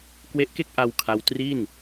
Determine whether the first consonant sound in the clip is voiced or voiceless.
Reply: voiceless